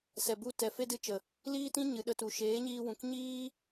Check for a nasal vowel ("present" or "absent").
present